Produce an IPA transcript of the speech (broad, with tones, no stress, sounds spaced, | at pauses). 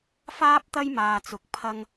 f aː˥ p̚ t̪ ɐ˥ j m aː˧ t͡s ʊ˧ k̚ pʰ ɐ˥ ŋ